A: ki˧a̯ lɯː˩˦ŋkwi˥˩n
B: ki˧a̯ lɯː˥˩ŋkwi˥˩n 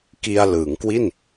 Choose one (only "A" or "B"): A